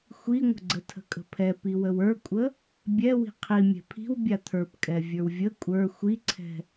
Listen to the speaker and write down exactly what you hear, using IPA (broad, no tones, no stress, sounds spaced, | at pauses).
xʷ i ŋʷ ə̤ ɡ͡ǀ ə tʰ ə̤ kʼ ə̤ pʰ ɛ p i w ə w ə˞ kʷʼ ə | bʲ ɛ w i̤ qʰ i mʲ ɛ̤ pʰ i̤ w bʲ a t̪ʰ ə˞ p kʼ ɛ vʲ ə˞ w vʲ ə kʷʼ ə˞ xʷ i ǀʰ ɛ̤